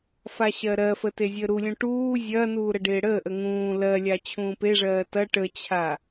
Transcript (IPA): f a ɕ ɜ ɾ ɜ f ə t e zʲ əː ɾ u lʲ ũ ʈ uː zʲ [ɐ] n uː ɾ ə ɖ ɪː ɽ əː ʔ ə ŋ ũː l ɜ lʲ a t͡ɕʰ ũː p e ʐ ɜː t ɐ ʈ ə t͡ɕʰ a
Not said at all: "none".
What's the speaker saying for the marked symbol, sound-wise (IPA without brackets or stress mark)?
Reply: ɐ